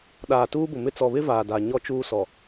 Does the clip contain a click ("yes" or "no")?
no